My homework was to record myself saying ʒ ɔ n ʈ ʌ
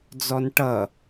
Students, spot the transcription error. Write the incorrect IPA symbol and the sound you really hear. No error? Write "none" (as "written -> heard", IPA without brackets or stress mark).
ʒ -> d͡z